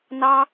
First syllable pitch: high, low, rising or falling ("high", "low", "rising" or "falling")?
high